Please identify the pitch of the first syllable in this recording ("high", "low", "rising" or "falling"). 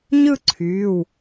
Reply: falling